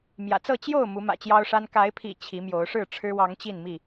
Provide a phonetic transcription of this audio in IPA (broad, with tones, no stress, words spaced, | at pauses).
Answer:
mjä̰˨˩t͡sɤ˥˨ t͡ɕjo˥˨ʊ̯ mu˨˦mä̰˨˩t͡ɕjɑ˦ʊ̯ʂa˦n ka˨˦ɪ̯pʰḭ˨˩ t͡ɕʰi˨˦mjo˨˦ʊ̯ʂɻ̩˥˨ ʈ͡ʂʰɻ̩˦wɑ˨˦ŋ t͡ɕi˥˨nmi˥˨